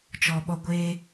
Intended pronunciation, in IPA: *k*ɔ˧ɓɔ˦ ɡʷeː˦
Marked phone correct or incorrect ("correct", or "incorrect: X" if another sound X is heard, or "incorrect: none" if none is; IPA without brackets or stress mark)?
incorrect: t͡ʃ